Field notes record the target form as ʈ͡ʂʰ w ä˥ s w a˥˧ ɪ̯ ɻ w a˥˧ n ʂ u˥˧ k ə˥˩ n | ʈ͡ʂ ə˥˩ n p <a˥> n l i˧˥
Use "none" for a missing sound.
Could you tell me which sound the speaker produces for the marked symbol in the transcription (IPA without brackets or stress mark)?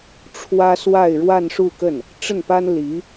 a˥